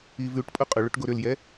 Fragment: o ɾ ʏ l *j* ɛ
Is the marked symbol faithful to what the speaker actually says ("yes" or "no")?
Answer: yes